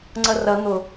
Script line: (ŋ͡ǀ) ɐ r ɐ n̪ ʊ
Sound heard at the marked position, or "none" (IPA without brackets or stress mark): ŋ͡ǀ